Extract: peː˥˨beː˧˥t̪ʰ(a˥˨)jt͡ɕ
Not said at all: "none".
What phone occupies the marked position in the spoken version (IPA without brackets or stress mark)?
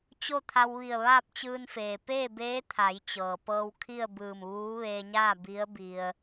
a˩˧